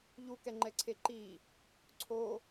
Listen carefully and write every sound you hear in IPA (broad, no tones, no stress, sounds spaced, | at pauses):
ʎ u k ɛ ŋ͡ǃ ɛ ǀʰ e ǃ i | ǀʰ o